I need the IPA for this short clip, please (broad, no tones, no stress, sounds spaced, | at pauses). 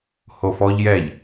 h o f ɔ ʎ j ɛ ʎ